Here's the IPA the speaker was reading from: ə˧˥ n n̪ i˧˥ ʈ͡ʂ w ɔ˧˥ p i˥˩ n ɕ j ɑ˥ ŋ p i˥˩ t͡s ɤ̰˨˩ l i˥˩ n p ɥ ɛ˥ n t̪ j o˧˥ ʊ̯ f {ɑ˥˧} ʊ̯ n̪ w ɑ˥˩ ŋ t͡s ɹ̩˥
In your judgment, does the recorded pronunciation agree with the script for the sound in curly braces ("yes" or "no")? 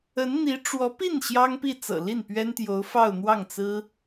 yes